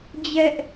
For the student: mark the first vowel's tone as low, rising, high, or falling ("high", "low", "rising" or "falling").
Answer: high